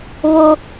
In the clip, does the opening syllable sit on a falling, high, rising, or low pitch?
high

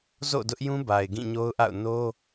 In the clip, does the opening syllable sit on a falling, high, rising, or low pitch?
falling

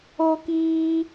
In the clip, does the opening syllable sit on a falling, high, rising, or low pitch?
high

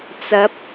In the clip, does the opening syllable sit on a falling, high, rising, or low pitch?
rising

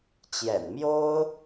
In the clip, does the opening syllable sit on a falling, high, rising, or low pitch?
low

